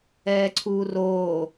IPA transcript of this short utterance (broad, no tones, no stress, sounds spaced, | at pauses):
ɛː ǀʰ uː r oː